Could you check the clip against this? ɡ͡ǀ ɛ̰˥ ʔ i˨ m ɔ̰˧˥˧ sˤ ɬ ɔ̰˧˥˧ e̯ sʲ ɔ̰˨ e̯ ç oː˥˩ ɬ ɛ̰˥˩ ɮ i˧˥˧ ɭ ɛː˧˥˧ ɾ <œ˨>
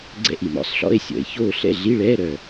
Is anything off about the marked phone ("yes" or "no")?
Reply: no